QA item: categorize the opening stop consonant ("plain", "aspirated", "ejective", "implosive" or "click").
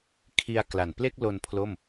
aspirated